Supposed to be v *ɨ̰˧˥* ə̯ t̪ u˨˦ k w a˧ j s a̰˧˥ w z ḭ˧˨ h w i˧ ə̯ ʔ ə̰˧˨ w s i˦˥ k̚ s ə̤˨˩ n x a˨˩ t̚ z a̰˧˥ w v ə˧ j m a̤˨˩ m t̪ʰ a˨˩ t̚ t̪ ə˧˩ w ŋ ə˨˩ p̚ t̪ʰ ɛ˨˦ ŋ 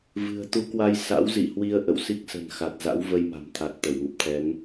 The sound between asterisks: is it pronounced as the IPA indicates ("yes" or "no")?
no